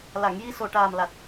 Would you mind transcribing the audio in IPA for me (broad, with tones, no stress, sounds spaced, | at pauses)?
l a˨˩˨ ŋ j i˧ s o˨˩ ʈ aː˨˩ m l a˨˩ t̚